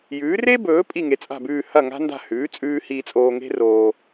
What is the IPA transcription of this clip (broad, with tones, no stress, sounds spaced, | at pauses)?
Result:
j ʉː˩˥ r e˥ b ɵː˩˥ pʼ i˥˩ ŋ e˩˥ t͡sʼ a̤˥˩ b ʉː˥˩ h ɐ˥˩ ŋ a̤˥ n d a̤˥˩ h ʉː˩˥ t͡sʼ ʉː˧ h iː˧ t͡sʼ oː˧ ŋ e̤˥ r oː˧